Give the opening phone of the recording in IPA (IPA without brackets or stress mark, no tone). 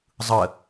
zˤ